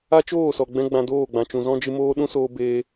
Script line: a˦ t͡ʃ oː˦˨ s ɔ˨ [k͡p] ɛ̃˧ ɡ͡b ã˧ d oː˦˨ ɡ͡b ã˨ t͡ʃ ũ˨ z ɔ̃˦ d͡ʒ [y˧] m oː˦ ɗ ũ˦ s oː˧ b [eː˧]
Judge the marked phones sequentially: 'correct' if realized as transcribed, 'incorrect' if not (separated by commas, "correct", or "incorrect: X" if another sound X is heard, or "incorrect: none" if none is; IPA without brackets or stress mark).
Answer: incorrect: ɡ͡b, incorrect: ɨ˧, correct